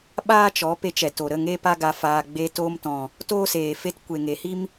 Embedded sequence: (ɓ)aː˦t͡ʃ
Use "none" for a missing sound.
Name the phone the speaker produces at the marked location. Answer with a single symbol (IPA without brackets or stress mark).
ɓ